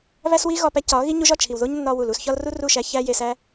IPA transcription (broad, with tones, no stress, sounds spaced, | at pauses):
β æ˦ s w i˦ ɣ ɒ˧ p æ˧ c ɒ˨˦ ɣ i˦ ɲ u˧ ʒ ɒ˦˨ t͡ʃʰ i˨ w ð o˦ ɲ nː ɒ˧ w u˨ l u˦˨ s ç ɒ˦ l r u˦ r u˦˨ ʃ æ˧ ç æ˦ j e˧ s æ˦